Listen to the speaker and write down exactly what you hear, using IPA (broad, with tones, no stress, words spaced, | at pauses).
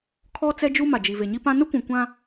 kʰɔ˦ t͡sɛ˦d͡ʒu˦ma˨ d͡ʒi˨ve˨ɲi˦pã˦ nʊ˦kʷũ˨ kʷã˦